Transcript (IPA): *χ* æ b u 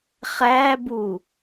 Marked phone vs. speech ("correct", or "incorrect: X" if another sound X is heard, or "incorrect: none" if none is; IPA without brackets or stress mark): correct